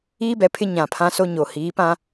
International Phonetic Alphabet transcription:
iː˦ b ɛ˨ pʰ ɪ˦ ɲ ã˨ pʰ ã˦ s o˦ ɲ o˨ h iː˨˦ p ã˦

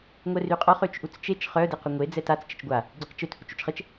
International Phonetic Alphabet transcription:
ŋʷ ɛ r y qʼ ɔ χ ø t͡ʃ ʔ u t͡s t͡ʃ e t͡ʃ χ œ d e q y ŋʷ e d͡z ɛ t a t͡s t͡ʃ ə t͡ʃ ɡʷ a | ɟ e q t͡ʃ ø t h u t͡ʃ y t͡ʃ χ ə t͡ʃ

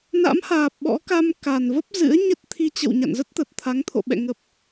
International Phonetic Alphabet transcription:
n a̰˧˥ m h aː˨˩ p̚ ɓ ɔ̰˧˥ k a˧ m k a˨˩ n v ə˦˥ p̚ z ɨ̰˧˥ ə̯ ɲ ə˦˥ t̚ t̪ʰ i˧ t͡ɕ ə̰˧˨ w ɲ a̰˧˨ n z ə˦˥ t̚ t̪ ə˨˩ t̚ t̪ʰ a˨˦ ŋ t̪ʰ o̰˧˨ ɓ ɛ̰˧˨ ŋ ə˨˩ p̚

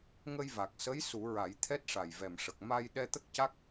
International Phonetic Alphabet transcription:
ŋ ə˧ j v a˨˩ k̚ s ə˧˥ j s u˨˩˦ ɹ a˨˩˦ j t̪ʰ ɛ˦˥ t̚ ʂ a˨˩ j v ɛ˨˩ m ʂ ə˨˩ k̚ m a˧ j ɗ ɛ˧ t̪ ə˦˥ k̚ c a˦˥ k̚

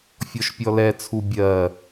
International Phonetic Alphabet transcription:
fʲ ɔ ʃ pʲ ɔ l ɛ t͡sʰ u bʲ ɜ

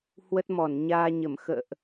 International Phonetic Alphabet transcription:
h w ə˦˥ t̚ m ɔ˧˩ n ɲ aː˧ ɲ ə˧˩ m x ə̰ː˧˨ ʔ

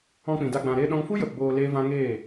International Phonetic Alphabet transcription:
ɔ̃˧ k͡p ĩ˨ d a˧ ɡ͡b ã˧ ɾ eː˦ ɗ ɔ̃˦ ŋ f u˦ j ə˨ p b oː˧ l eː˦ v ã˦ ŋ eː˦˨

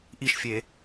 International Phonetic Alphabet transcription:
ʔ i ʃ fʲ e

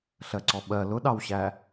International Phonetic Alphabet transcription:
ɬ ɜ ǀ ɔ ɓ ɜ l ʊ ɗ ɑ w ɕ æ

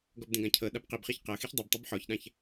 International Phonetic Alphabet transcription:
ɡ ɔ b d ẽ ɡ ã cʰ ɤ ɗ a b q i b χ i ç q ɤ x i ç dˤ i b tˤ ɯ b ħ ɔ ç ɗ ã ç

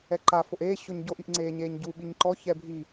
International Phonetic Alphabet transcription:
ɛ ǃ a f o ʔ eː ɕ o ɲ ɟ o ʔ i ʔ ŋ͡ǀ eː ɲ eː ɲ ɟ u ɓ i ɲ ǃ ɔ ç ɛ bʱ i

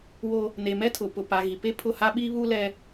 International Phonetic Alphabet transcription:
w o˦ | n e˨ m ɛ˦ tʰ ʊ˨ p ʊ˨ p a˨ ɣ i˨ p e˦ pʰ ʊ˦˨ h a˦ ɓ iː˦ β uː˦ l ɛ˦

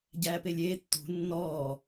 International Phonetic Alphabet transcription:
ɟ æː p e lʲ eː tː ṳ nː ɔː

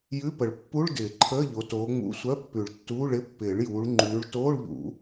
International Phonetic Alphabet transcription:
j ʉ˧˥˧ p ə˨˩˦ ɭ pː u˧˥˧ ɭ d ɪː˨˩˦ ǃʰ əː˧˥˧ ʎ o˨˦ t oː˨˦ ŋ͡m ṵ˧˥˧ sʷ œ˧˥˧ pː ʉ˨˩˦ ɭ tː uː˧˥˧ ɭ ɪ˧˥˧ pː ɪː˨˩˦ ɭ j uː˨˦ ɭ ŋ͡ǃ ʉː˨˦ ɭ t oː˧˥˧ ɭ ʎ ṵ˨˩˦

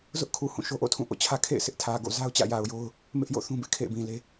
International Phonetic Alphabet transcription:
z ʊ˦ ʔ kʰ u˨ h ũ˦˨ ʃ o˦ ʔ o̰˦˨ tʰ ũ˦˨ ʔ o̰˦˨ t͡ɕʰ ä˦ kʰ ḛ˦˨ ɪ̯ sʰ ɪ˦ ʔ tʰ ä˨ ɡ o̰˦˨ z a˦ ʊ̯ t͡ɕ ä̰˦˨ j a˨ ʊ̯ j o˦ ʊ̯ | m ɪ˦ ʔ j o̰˦˨ θ ũ˦ b ɪ˦ ʔ kʰ ḛ˦˨ ɪ̯ b ĩ˨ l e˦

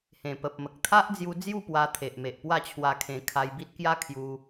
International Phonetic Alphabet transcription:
h ẽ˨˩ p ə˨ p̚ m ə˨ k̚ t̪ʰ a˦ ʔ d͡z j u˧ d͡z j u˥˧ p w a˧ t̪ʰ e˨ ʔ m e˨ ʔ p w a˥˧ t͡ɕʰ w a˧ kʰ ẽ˧ kʰ a˧ j b i˦ t̚ k j a˦ kʰ j u˧

